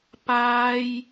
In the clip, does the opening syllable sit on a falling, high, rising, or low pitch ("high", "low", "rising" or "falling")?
high